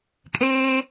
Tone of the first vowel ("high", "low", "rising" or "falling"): high